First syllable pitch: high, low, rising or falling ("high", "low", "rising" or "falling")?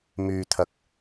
low